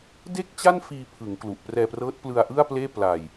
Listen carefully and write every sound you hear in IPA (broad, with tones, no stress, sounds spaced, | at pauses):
d e˥˩ k̚ t͡ɕ a˥˩ n f iː˧ pʰ ɯ˩˦ ŋ k l u˨˩ ʔ p r ɛː˧ p r ɤː˦˥ t̚ p l ɯ˧ a̯ ʔ ɯ˥˩ a̯ p l eː˥˩ p l a˧ j